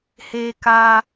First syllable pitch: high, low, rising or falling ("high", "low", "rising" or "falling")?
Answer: high